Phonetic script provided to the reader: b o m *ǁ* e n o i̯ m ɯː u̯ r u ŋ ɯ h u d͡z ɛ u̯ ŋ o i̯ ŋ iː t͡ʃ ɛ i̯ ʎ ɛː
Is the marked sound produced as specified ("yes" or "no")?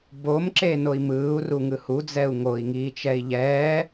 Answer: yes